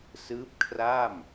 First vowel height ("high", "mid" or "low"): high